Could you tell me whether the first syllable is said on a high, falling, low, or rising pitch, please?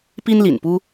high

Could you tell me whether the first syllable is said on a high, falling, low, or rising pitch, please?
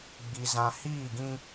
low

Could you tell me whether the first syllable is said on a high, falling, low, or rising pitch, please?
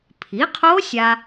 rising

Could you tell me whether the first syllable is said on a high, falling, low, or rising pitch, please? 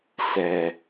low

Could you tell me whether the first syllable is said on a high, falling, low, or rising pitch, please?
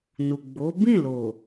low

